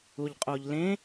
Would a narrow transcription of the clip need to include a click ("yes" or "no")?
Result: no